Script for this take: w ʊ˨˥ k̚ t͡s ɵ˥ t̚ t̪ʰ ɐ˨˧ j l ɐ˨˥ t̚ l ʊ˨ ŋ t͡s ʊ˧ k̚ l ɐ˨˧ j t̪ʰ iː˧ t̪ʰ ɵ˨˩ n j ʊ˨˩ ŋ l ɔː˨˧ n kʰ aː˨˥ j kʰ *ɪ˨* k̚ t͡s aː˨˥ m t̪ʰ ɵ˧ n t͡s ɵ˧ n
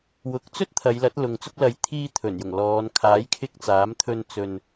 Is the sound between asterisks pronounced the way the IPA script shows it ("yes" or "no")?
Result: no